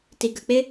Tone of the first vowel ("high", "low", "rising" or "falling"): low